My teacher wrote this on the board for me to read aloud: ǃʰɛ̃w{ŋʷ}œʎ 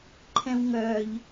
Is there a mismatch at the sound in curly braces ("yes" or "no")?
yes